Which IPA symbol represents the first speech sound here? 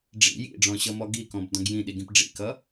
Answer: ɖ͡ʐ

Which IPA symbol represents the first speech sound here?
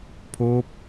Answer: pʰ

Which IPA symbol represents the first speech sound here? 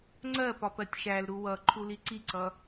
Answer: ŋ͡ǀ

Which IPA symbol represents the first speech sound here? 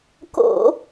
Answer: k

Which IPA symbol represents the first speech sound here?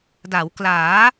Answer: d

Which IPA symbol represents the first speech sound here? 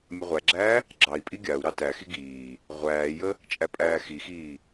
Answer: mʲ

